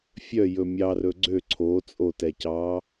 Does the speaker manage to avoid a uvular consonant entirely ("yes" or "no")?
yes